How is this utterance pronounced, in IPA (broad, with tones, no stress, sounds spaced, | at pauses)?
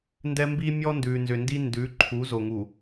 n d ɛ˦ m b i˦ mʲ ɔ˦ n d ʉ˨ n z ʏ˨ n d i˦ n d ʉ˨˦ ǃʰ u˨˦ z o˨ ŋ u˨